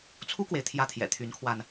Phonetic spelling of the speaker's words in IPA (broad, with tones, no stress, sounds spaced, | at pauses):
t͡sʰ u˥ k w e˨ ɪ̯ t̪ʰ j ä˧˥ t̪ʰ j ɛ̰˨˩ t̪ʰ y˧˥ n kʰ w a˧ n